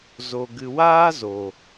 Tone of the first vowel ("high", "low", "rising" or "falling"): low